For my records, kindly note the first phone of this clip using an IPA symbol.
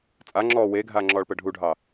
t͡sʼ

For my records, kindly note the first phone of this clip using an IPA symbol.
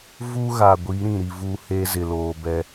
v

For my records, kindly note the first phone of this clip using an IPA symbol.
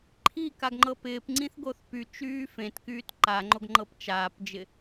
ǃʰ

